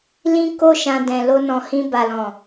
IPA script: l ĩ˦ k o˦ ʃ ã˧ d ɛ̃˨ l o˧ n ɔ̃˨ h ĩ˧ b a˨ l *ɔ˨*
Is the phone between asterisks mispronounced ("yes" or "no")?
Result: yes